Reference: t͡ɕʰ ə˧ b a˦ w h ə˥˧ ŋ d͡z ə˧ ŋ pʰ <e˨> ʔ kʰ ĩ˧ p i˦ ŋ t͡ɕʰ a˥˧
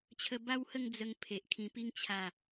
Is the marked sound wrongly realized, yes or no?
no